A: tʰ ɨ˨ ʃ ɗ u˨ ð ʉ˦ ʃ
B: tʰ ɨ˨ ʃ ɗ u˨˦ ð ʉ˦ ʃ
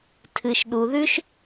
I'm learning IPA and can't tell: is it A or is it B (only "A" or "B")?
A